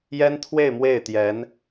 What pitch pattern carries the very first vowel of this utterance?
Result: high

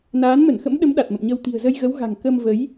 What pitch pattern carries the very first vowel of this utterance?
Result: rising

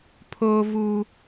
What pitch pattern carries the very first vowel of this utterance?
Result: high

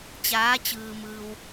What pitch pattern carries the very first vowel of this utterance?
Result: rising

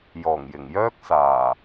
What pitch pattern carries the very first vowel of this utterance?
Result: low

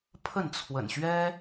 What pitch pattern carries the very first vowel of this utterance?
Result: falling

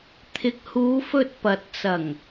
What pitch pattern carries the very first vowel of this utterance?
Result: low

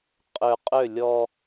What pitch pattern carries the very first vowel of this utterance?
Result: low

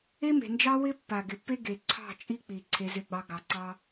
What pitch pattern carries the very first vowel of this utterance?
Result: high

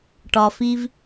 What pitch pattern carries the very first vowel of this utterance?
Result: low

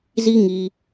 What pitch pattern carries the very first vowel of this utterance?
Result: high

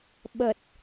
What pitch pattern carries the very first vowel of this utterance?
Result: low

